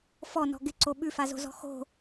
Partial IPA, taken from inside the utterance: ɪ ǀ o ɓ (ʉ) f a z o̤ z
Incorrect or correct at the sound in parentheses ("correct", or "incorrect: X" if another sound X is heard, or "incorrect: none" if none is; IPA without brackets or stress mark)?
correct